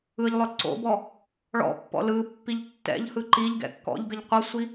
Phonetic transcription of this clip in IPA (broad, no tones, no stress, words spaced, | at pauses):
ɯʎlˠœ ǀo̰bɔ | ɭɔ̰pːɔ̰ lɯ pːiʎtːɛ̰ʎhɯ ǃiʎ ɡɛ̰kːɔ̰ʎɡəʎ qʷʌsʷi